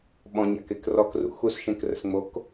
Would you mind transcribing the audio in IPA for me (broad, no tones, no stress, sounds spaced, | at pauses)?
ɓ ɔ̃ ɲ a̰ k e k r ɔ k r ṵ x u s ʃ ẽ k r ə̰ s ŋ͡m o k